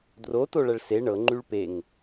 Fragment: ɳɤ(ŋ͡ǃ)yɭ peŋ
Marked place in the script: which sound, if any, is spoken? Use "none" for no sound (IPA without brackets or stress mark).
ŋ͡ǃ